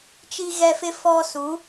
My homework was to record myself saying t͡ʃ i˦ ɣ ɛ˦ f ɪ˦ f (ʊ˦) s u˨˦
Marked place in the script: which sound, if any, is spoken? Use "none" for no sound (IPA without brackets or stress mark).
ɔ˦